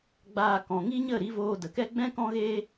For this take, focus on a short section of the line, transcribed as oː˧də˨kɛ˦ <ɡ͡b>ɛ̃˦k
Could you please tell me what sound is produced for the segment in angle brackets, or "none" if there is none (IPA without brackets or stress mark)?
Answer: ɡ͡b